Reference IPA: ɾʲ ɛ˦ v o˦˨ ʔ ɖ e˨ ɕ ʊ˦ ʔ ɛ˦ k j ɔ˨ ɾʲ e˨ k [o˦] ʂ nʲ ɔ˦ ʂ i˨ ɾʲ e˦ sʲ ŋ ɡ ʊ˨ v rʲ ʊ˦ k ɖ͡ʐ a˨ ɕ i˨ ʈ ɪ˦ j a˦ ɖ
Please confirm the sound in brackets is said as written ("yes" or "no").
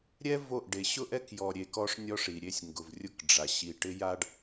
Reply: no